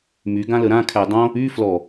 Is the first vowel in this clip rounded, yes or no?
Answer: yes